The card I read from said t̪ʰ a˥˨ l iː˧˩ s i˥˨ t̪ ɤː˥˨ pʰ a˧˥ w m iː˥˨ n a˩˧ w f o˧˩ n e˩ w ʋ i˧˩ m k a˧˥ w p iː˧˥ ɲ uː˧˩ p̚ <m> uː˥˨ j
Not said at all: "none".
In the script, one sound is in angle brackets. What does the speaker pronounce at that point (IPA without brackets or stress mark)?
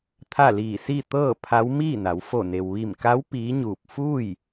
f